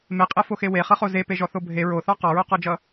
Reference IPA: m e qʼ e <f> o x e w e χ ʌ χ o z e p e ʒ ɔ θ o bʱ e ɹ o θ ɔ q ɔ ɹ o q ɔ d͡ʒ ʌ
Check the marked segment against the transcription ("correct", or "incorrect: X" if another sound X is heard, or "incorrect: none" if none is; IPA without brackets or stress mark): correct